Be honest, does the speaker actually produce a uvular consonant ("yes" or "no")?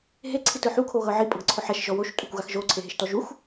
no